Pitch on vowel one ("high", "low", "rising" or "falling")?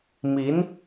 rising